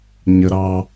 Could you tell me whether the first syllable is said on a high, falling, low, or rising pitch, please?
low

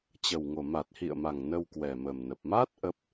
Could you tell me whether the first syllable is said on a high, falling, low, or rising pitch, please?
low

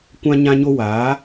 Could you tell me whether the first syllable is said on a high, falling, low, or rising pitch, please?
high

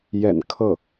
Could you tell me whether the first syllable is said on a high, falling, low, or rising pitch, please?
low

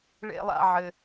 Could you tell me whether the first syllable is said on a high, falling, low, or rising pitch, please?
high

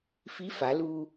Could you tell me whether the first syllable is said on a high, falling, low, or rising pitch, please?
rising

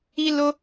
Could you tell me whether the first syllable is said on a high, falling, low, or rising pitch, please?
high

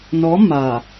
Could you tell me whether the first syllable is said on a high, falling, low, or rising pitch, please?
rising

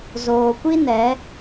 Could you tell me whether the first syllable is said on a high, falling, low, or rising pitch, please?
low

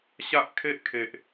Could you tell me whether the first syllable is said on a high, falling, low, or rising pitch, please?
high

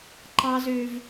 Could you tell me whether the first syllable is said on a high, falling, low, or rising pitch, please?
high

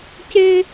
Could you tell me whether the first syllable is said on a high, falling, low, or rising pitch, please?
high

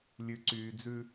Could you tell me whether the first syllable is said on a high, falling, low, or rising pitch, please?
low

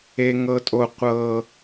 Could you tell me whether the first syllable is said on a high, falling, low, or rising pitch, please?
low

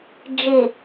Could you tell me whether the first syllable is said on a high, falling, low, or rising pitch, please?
low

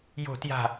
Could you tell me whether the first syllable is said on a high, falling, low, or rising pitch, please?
falling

